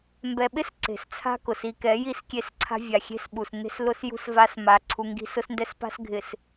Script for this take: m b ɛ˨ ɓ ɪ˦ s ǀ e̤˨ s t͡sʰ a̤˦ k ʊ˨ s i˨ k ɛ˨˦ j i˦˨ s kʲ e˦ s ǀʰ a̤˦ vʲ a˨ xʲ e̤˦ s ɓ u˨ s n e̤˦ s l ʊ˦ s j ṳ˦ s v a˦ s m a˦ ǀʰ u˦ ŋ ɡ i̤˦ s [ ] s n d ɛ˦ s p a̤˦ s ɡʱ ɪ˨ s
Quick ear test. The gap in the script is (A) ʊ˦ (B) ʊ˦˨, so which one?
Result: A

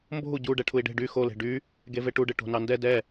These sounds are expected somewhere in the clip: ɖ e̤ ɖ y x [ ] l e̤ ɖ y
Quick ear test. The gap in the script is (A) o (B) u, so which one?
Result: A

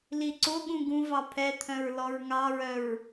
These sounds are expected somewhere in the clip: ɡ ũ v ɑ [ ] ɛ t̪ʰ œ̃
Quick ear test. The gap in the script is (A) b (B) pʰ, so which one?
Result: B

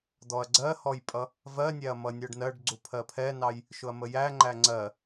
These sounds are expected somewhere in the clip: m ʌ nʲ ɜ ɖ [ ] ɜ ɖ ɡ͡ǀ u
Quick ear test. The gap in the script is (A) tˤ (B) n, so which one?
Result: B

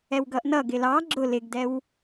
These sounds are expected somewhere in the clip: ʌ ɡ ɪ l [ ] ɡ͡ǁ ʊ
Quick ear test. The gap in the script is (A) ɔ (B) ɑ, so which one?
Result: B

